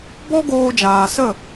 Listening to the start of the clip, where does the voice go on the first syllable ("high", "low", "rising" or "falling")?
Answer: high